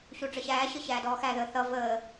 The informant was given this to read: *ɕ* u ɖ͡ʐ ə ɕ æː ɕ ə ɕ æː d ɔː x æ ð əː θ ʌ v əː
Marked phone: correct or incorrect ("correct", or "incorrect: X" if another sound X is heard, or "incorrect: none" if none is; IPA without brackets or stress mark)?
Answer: correct